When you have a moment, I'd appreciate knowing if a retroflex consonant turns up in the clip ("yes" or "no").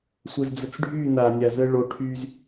yes